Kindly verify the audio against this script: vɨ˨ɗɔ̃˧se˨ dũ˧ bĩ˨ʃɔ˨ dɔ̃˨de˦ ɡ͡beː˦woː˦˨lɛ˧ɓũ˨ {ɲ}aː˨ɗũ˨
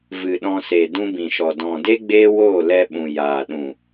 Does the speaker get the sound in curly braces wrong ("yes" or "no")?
yes